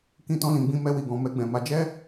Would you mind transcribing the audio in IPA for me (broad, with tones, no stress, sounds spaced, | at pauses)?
k ĩ˧ t ɔ̃˧ l ĩ˨ ɡ͡b ĩ˧ m ɛ˧ w i˨ ɡ ɔ̃˨ m ɛ˧ ɡ͡b ɛ̃˨ m a˨˦ d͡ʒ ɛ˦